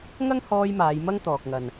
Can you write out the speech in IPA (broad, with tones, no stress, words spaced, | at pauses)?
ŋɐ˥ŋ hɔː˧j maː˨˧jmɐ˥ŋt̪ɔː˨k̚ŋɐ˨n